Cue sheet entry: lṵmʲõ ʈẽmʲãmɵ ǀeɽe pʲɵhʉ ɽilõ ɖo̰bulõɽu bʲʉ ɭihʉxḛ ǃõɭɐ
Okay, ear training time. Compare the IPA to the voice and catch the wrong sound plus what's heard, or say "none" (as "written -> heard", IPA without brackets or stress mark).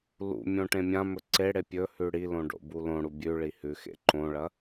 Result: none